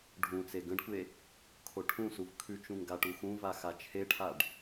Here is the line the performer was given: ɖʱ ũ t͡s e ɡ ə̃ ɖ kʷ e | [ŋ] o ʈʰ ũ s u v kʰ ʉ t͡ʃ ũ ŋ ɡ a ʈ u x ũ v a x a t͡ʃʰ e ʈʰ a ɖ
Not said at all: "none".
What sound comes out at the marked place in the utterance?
kʰ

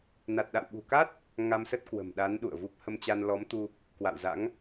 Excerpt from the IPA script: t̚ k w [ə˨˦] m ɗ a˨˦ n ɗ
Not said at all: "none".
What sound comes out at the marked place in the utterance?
ə̤˨˩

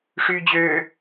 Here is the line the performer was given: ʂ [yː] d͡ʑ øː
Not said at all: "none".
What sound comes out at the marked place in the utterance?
yː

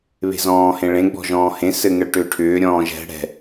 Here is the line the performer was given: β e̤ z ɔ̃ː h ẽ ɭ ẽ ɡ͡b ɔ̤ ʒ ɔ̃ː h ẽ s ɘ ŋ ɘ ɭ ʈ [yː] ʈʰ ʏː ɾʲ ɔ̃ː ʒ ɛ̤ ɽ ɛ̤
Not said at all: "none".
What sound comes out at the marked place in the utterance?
ʏː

